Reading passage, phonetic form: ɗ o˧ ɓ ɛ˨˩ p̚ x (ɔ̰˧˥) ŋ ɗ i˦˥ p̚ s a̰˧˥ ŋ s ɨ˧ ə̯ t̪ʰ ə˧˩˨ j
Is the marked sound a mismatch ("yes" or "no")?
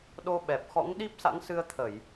no